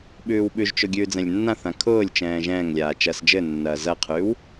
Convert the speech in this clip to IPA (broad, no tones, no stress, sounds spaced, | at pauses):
ɓ ʉː w ɓ ʉ ʒ t͡ʃ ʊ ɡʲ ʉː d͡z ɛ̃ lʲ nː ã θ ã kʰ ʊː lʲ t͡ʃ ɛ̃ː ʒ ɛ̃ː ŋ lʲ aː t͡ʃ ɐː s d͡ʒ ɘ nː ɐː z ɐ qʰ ʉː w